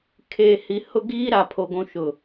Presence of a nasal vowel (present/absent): present